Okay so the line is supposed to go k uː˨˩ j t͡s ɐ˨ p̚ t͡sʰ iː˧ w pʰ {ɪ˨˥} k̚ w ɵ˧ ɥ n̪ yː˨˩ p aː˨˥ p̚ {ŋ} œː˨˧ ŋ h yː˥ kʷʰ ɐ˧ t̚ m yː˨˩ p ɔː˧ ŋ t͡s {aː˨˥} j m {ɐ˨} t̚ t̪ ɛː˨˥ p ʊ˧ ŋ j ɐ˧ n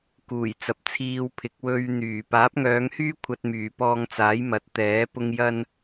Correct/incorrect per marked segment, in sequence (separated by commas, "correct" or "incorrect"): correct, correct, correct, incorrect